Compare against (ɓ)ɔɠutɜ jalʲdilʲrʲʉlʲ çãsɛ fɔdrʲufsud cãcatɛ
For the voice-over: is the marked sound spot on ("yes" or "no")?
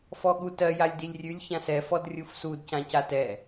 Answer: no